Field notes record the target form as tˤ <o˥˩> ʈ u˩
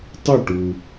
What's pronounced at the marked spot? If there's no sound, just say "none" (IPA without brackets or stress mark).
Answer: ɵ˥˩